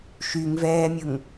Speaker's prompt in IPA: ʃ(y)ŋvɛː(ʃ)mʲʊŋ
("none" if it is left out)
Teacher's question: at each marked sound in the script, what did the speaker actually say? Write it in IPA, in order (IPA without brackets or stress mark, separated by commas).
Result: y, none